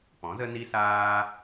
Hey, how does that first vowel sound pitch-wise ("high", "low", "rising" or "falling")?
rising